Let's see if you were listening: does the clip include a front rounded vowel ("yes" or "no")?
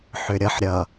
yes